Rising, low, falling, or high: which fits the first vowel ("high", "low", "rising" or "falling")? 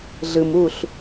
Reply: low